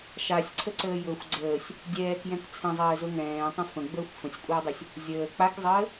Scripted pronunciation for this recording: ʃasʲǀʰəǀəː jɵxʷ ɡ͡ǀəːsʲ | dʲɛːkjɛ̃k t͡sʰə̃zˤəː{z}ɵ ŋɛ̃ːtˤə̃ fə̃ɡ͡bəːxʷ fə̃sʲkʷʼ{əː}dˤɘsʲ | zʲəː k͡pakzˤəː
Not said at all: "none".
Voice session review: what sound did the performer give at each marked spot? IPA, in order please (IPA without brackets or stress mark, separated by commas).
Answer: z, əː